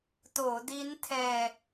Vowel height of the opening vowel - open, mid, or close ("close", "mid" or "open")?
mid